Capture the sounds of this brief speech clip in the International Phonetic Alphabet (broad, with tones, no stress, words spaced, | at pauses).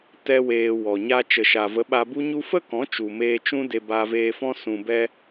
tɛ˦weː˧wɔ˨ ɲa˧ t͡ʃə˨ʃa˨və˨˦ɓa˧ bu˦ɲu˦ fə˦kɔ̃˨˦ t͡ʃu˨meː˧ t͡ʃũ˦ de˧baː˧veː˧fɔ̃˦ sũ˧bɛ˦